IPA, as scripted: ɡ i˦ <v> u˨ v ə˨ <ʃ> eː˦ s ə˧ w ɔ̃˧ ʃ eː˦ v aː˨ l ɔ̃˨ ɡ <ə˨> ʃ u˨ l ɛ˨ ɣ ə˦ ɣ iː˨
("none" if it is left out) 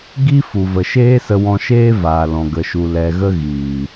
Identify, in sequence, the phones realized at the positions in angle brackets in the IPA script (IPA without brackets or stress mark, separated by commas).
f, ʃ, ə˨